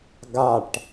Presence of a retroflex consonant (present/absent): present